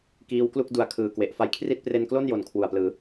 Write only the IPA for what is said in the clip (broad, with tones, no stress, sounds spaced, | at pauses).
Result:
k iː˦˥ w k l u˥˩ k̚ d u˩˦ a̯ kʰ ɯː˨˩ k w e˨˩ ʔ f a˧ j kʰ r i˥˩ t̚ p r e˧ n k l o˥˩ n j o˩˦ n kʰ w u˨˩ a̯ p l ɯː˩˦